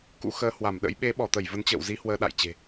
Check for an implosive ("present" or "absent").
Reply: present